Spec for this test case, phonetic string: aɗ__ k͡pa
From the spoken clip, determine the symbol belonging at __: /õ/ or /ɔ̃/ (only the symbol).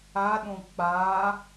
õ